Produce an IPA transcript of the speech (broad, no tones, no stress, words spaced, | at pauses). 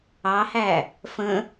ɑhæ | fə̃